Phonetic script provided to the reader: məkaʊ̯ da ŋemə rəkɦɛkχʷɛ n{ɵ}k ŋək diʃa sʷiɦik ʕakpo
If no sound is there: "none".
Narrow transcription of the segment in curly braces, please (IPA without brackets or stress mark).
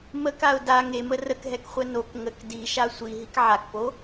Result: o